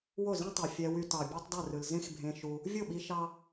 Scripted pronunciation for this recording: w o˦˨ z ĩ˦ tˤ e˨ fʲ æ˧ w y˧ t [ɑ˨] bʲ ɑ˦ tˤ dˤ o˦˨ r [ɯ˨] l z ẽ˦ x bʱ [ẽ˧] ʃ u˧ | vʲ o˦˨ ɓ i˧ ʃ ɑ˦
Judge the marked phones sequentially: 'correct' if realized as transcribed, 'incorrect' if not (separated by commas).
correct, correct, correct